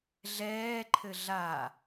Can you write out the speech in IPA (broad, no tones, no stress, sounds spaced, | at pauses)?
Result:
ɮ ɛː ǃʰ ɘ ɮ a